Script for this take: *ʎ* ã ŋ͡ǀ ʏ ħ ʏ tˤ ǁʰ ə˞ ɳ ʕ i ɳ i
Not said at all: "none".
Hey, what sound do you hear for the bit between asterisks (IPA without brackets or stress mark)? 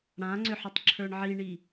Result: ɽ